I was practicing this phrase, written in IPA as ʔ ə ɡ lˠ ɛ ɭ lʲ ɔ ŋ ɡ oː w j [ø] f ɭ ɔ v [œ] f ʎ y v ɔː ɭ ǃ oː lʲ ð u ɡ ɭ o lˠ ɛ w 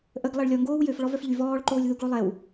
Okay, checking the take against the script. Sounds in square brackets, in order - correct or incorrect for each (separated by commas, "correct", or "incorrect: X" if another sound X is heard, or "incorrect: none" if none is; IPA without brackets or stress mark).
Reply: correct, correct